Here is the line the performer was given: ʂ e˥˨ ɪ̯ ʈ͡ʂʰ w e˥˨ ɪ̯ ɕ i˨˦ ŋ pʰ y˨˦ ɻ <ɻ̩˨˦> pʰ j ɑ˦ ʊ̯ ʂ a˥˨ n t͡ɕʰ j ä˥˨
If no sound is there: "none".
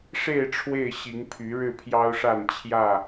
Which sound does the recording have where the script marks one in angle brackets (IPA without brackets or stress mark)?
ɻ̩˥˨